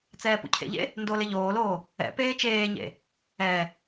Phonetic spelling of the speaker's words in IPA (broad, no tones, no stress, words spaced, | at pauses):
t͡sɛːpṵcʰḛʎḛ | ndolɪ ʎoːloː | ɛ̰ peːt͡ʃeːɲḛ | ɛ